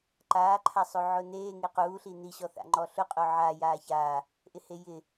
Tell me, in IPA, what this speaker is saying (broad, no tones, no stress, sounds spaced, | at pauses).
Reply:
ǃ aː ǃʰ a sˤ o ʕ ʊ n eː ŋ e q uː ɬ i n i ɕ ɔ θ a̰ ŋ͡ǃ ɔ ɬ ʊ qʼ o ʕ a j aː ç aː | ʔ ɪ h e j ɪ